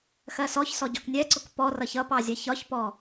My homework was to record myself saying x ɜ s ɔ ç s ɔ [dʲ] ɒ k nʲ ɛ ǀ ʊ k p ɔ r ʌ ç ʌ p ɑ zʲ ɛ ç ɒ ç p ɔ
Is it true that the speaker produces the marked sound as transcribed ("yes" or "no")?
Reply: no